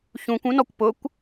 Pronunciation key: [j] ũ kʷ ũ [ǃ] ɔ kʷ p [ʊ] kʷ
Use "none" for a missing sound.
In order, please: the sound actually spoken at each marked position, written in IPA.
ç, n, ʊ

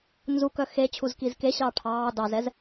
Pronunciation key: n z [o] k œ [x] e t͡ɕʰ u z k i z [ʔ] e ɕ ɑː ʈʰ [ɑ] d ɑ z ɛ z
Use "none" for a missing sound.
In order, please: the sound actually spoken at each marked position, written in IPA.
u, x, k, ɑː

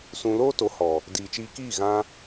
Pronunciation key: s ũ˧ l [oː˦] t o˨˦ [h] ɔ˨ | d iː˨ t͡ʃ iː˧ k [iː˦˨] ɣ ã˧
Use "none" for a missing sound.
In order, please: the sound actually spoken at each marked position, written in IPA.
oː˦, h, iː˦˨

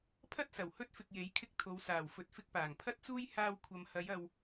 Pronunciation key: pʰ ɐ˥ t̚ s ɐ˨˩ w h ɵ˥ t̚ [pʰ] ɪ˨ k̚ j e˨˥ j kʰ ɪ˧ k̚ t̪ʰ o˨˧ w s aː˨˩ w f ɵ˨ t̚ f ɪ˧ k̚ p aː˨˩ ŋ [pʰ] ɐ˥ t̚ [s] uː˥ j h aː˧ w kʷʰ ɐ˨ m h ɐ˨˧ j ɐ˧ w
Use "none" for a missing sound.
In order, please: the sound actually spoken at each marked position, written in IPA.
f, pʰ, t͡s

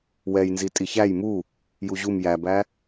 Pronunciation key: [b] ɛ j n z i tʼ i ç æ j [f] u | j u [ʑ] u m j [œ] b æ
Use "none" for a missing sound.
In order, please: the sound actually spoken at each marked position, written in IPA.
w, m, ʑ, æ

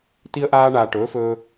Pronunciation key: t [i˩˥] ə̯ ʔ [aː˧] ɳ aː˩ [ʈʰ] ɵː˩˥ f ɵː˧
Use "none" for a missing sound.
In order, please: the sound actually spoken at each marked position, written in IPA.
i˧, aː˧, ʈ

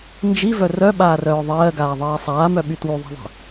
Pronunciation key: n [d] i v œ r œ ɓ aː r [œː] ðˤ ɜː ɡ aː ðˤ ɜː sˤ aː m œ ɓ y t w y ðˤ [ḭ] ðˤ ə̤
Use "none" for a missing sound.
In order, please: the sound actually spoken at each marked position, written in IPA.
d͡ʒ, œː, i̤

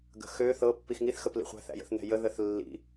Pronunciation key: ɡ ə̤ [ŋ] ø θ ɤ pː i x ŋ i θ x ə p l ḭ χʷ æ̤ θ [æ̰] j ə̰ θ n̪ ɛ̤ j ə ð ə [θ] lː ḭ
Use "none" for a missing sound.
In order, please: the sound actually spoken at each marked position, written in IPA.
x, æ̰, θ

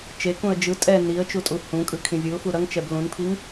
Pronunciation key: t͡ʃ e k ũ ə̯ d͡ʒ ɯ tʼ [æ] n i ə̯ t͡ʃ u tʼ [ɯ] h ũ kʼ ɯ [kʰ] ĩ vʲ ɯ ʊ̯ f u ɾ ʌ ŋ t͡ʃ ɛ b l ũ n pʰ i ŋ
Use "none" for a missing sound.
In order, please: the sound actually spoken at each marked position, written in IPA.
ɛ, u, kʰ

